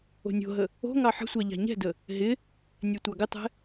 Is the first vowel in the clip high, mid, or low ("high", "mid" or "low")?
mid